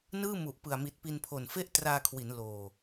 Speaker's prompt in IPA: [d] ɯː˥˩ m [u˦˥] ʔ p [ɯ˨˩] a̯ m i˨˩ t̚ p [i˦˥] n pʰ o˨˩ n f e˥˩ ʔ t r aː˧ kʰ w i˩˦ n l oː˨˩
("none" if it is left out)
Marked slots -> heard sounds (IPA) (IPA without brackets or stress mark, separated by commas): n, u˨˩, ɯ˨˩, i˧